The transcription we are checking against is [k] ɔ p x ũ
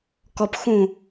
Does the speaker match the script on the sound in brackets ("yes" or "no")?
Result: yes